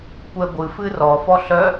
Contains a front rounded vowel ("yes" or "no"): yes